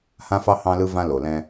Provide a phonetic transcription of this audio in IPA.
h ã˦ f ɑ˦ h ɑ̃˦ l ɯ˦ v ã˦ l o˨ l ɛ̃˦

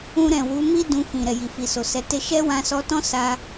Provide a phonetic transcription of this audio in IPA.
ũ˧ ɾ ɛ̃˨ w u˨˦ m i˦ d ũ˧ f ĩ˨ ɾ ɛ˨ j i˨ f i˨ s o˨ s ɛ˨˦ t e˦ ʃ ɛ˦ w ã˧ s ɔ˧ t ɔ̃˦ s a˦

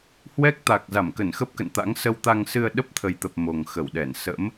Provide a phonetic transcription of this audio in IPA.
h w ɛ˦˥ k̚ t̪ a˨˩ k̚ z a˧˩ m k ə˧˩ n x ə˦˥ p̚ k ə̰˧˨ n t̪ a̰˧˥ ŋ s ə˧ w t̪ a˧ ŋ s ɨ˧ ə̯ ɗ ə˦˥ p̚ t̪ʰ ə˨˩ j t̪ ə˨˩ p̚ m o˨˩ ŋ x ə˧˩ w ɗ ɛ˧˩ n s ə̰˧˥ m

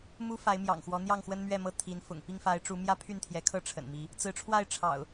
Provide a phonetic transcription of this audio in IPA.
m u˦ f a˨˦ ɪ̯ m j ɑ̰˨˩ ŋ x w ɔ˨˦ n̪ j ɑ˥˨ ŋ x w ə˦ n m ɥ ɛ˥˨ m ɤ˥˨ t̪ʰ i˨˦ n f ʊ̰˨˩ ŋ p i˥˨ ŋ f a˨˦ ɪ̯ ʈ͡ʂ u˨˦ m j ä˦ pʰ y˥˨ n t̪ʰ j ɛ˨˦ kʰ ɤ˥˨ ʈ͡ʂʰ ə̰˨˩ n m i˨˦ | t͡s ɹ̩˨˦ ʈ͡ʂʰ w a˥˨ ɪ̯ ʈ͡ʂʰ ɑ̰˨˩ ʊ̯

